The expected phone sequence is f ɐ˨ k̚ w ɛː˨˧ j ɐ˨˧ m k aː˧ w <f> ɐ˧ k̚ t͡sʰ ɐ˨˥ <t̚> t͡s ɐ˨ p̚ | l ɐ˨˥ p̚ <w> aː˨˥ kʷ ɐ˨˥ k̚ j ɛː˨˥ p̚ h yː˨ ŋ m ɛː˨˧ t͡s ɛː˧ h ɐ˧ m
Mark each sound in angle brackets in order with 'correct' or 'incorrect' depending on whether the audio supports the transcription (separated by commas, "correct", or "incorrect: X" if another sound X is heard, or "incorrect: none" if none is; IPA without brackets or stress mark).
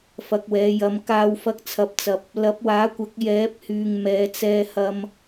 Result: correct, incorrect: p̚, correct